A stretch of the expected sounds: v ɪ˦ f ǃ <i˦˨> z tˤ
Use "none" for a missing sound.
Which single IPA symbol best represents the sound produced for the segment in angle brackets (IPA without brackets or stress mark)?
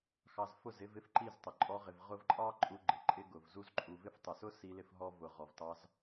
i˦˨